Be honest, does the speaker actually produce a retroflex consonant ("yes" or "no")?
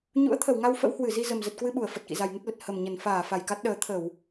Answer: no